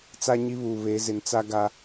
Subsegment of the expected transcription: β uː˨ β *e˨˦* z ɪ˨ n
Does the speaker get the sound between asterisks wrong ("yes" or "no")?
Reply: no